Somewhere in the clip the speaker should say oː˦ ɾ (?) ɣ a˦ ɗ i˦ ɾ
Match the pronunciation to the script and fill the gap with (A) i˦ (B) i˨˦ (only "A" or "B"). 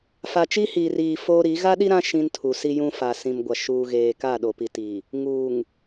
B